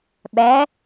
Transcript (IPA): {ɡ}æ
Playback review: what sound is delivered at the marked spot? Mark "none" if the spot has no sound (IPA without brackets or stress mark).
ɓ